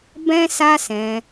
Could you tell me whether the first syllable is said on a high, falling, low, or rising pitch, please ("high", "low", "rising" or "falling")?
high